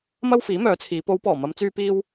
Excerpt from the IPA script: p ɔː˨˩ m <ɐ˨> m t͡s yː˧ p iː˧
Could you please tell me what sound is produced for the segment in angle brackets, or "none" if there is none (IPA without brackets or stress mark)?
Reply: ɐ˨˧